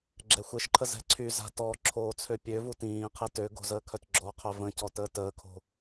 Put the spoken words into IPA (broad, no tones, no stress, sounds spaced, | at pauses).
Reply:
ɡ͡ǁ ɛ xʷ e ʃ ǃʰ ə z ɛ̤ ǀʰ y z a̤ t ɔ ǁʰ oː t͡sʰ ø pʲ ø v u t ĩː qʰ e t ø ɡ o̤ z əː kʰ œ t ɡ͡ǁ ɔ qʰ œ v ə̃ c ɔ t əː t əː kʰ o̤